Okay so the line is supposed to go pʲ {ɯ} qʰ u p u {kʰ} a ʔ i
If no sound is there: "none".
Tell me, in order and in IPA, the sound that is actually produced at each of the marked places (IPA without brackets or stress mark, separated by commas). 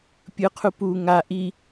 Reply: ɯ, ŋ